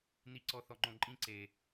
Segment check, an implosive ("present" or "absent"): absent